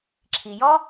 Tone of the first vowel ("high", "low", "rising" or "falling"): low